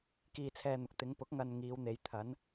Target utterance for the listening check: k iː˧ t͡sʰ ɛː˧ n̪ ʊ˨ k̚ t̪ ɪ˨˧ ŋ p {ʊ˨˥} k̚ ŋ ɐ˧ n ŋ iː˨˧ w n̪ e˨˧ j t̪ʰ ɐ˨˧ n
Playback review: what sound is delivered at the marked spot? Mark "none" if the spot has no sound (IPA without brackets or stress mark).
ʊ˨˥